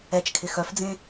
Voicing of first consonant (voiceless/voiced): voiceless